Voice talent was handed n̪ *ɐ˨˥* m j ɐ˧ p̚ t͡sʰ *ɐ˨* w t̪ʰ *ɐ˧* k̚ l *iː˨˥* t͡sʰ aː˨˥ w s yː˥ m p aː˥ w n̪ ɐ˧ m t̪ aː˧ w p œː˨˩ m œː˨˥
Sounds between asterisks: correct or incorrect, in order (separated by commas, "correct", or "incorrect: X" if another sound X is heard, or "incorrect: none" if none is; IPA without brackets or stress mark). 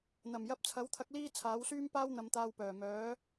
incorrect: ɐ˨˩, incorrect: ɐ˨˥, incorrect: ɐ˨˥, incorrect: iː˥